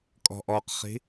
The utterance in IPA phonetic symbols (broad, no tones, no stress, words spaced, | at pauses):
kʼɔ̤ʔɔqχi̤